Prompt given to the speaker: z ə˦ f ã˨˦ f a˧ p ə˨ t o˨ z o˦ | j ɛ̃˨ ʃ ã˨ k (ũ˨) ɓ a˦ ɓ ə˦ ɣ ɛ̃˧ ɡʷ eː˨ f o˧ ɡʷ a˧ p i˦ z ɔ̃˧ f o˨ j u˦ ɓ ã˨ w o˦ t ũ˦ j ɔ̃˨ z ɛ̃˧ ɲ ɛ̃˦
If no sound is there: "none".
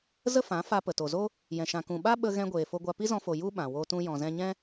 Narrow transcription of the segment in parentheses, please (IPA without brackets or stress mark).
ũ˨